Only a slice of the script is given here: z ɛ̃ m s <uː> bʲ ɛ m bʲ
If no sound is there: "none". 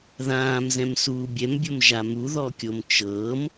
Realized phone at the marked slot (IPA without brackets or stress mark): uː